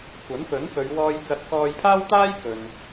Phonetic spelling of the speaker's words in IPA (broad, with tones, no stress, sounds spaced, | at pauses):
kʷ ɐ˨˥ n f ɵ˨˥ n f ɵ˨˧ ɥ w ɔː˧ j t͡s ɐ˨˥ t̚ k ɔː˧ j pʰ aː˥ w t̪ aː˥ j k ɵ˨ n